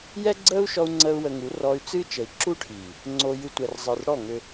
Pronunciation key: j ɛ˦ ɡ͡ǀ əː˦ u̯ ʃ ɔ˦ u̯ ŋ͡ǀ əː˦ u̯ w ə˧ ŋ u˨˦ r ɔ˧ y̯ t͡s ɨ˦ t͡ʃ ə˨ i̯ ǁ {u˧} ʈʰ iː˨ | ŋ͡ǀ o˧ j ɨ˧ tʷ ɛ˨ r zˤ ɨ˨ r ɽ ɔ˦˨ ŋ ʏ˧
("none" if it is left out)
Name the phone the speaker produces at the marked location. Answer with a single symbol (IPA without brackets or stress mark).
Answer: u˦